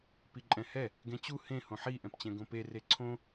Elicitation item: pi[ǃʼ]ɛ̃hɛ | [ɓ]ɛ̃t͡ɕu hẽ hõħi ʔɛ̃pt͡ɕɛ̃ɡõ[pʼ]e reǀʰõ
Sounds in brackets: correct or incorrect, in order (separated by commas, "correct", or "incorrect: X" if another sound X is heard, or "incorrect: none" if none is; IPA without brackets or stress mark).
correct, incorrect: ɡ, incorrect: p